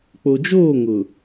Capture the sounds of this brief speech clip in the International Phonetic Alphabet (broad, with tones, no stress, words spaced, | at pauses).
k͡po˨d͡ʒoː˦˨ ŋʊ˨